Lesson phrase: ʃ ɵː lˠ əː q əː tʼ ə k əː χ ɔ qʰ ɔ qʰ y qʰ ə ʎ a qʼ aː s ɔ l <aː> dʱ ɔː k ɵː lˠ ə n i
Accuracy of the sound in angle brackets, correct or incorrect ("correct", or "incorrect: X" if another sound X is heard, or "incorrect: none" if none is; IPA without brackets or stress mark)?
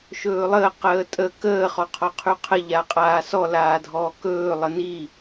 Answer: correct